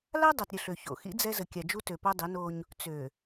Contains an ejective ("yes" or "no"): no